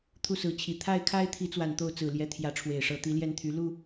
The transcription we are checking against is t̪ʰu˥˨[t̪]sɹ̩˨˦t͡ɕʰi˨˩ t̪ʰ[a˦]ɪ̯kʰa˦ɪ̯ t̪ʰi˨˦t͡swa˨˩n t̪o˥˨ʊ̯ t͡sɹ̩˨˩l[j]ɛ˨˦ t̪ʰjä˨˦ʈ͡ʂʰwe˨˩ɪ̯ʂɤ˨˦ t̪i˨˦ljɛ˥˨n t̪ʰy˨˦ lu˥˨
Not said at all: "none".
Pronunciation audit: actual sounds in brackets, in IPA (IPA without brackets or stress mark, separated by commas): none, a˥˨, j